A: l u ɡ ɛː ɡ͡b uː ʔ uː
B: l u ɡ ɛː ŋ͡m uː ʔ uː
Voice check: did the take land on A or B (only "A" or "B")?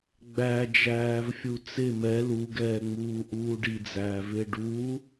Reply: B